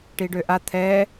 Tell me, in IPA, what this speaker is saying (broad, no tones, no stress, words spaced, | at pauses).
ʈiɖøʔa t̪ʰɛ